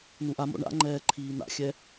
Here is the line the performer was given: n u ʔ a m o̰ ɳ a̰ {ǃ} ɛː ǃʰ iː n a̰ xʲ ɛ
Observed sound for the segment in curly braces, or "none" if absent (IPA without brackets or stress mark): ŋ͡ǃ